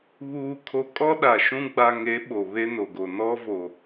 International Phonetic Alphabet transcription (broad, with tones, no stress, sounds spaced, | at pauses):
β uː˨ kʰ o˨ kʼ ɔ˦ ɗ a˨ ʃ ũ˦ ɡ͡b a˨ ŋ e˨˦ ɓ o˨ β e˦ n o˨ ɡ o˨ n ɔ˦ v o˨